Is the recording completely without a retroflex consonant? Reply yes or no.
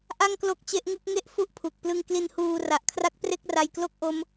yes